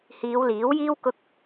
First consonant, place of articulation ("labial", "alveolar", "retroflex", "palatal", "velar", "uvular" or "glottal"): glottal